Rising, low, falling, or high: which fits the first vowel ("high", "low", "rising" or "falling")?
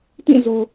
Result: falling